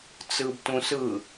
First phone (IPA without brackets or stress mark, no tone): t͡s